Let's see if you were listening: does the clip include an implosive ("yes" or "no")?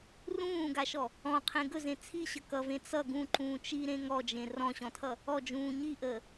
no